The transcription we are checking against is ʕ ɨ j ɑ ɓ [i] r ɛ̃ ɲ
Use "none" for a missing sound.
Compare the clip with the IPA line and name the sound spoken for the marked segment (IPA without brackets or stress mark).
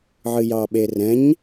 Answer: e